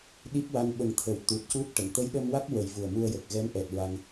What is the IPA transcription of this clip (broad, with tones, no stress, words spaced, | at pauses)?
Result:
ɗi˦˥p̚wa˧˥n ɓə˨˩˦ŋt̪ʰə˨˩˦w t̪u˨˩t̚cu˦˥t̚ʈə˨˩˨ŋ t̪ə˧˥jɗə˧mwa˦˥k̚ wə˨˩˦jvu˨˩ə̯mu˧ə̯ jə˨˩k̚ɣɛ˧˥m ʔɛ˨˩t̚ ɹa˧ŋ